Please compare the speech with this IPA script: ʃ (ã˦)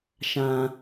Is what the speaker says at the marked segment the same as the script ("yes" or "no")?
yes